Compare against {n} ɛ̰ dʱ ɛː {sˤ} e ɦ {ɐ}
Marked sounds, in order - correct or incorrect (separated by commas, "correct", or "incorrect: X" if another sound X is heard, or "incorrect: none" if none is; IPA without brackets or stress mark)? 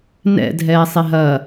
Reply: correct, correct, correct